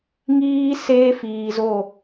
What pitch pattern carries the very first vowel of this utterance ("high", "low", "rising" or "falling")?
high